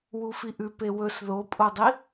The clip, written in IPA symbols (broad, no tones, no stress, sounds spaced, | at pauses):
w u f i ʔ ʉ p e w ɵ s ð o pʼ o dˤ i